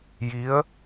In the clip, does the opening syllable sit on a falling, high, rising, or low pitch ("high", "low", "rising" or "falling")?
rising